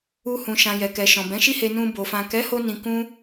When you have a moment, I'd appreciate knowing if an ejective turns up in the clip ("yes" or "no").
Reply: no